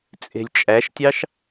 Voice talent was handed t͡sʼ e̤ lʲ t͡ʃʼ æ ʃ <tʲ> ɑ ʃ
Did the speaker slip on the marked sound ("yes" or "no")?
no